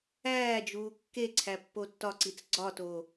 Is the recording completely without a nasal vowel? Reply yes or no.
yes